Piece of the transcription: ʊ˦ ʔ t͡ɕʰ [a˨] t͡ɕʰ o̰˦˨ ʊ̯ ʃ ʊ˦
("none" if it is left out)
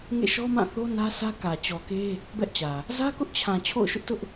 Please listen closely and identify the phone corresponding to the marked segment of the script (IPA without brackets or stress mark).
ã˨